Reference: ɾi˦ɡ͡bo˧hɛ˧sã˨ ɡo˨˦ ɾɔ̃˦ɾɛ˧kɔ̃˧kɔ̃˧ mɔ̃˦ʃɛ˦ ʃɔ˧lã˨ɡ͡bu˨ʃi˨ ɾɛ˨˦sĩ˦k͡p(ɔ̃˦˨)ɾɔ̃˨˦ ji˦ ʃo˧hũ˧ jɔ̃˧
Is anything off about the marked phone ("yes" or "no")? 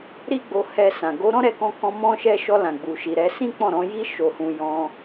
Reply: no